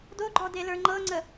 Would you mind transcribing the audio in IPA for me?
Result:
d o ɡ͡ǃ ɔ d e l ə˞ ŋ͡ǃ ɤ ŋ͡ǀ ə

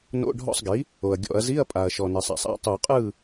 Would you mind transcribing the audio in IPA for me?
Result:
n o̰˧˥˧ ɖʱ ɔ̰˥˨ sˤ ɡ i˩˥ | o˨˩ ɐ̯ ɡʲ ɔ̰˧˩˧ ɐ̯ z i˧˥˧ ɐ̯ pʼ a˨˩ ɐ̯ ʃ ɔ˨˩ n e˨˩ sˤ a̰˨˩ sˤ a̰˥˨ tˤ u˧˩˧ qʼ ɯ˥˨

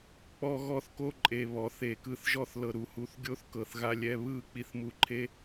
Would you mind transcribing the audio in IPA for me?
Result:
k͡p ɔ˦ ɣ ɔ˦ θ k o˦ ǃʼ e˨ β ɔ˨˦ θ e˨ k ɯ˦ θ ʒ ɔ˦ θ l ɤ˨ ɾ u˨ h u˨ θ ɡʲ o˦ θ k ɤ˨ θ ɣ a˦ lʲ ɛ˦ β ɯ˦˨ k͡p i˨ θ m u˨ ǃʰ e˦

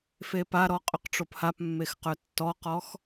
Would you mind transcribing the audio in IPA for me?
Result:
f e p a ɾ ɔ qʼ ʏ q ʈ͡ʂ o p h a p mː e x q œ tː ɔ q ɔ x

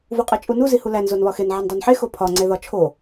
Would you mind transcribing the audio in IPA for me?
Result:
v u qʼ e t͡ʃʼ u n u z i h u l æ n z o n β ɒ x e n ʕ e n dˤ o n ħ e x o pʰ ɒ ŋ͡ǀ e ð ɒ t͡ʃʰ o

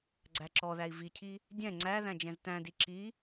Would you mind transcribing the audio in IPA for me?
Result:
ɡ͡ǀ æ ǁ ɔ ð æ i̯ v i cʰ i | dʲ ɛ̃ ŋ͡ǀ æ ð æ̃ d͡ʒ ɛ̃ z t æ̃ d i ǁ i

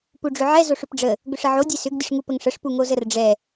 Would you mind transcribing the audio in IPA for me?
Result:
p u ɖ͡ʐ ʏ ʕ ɛ z o ʂ ʏ p ɖ͡ʐ ə | ɡ ʏ ʂ ə ʕ o dʲ ɛ s ʏ ɡ dʲ ə ʂ ŋ u p ə ŋ ʂ ə ʂ p u ŋ o z ə r ɖ͡ʐ ɛ

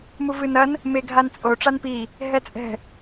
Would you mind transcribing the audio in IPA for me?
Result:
m u v ɨ n ɐ n | m e ɡʱ a n t͡sʼ o ʈ͡ʂ a n p i | ɦ ɛ t͡sʼ ɛ̤

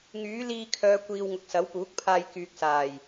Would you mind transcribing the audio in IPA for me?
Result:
ŋ yː˨˥ l iː˧ kʰ œː˨˧ kʷ iː˨ w ŋ ʊ˨ k̚ s ɐ˨˥ w p uː˨˥ k̚ pʰ aː˧ j k yː˨ k̚ s aː˨˩ j

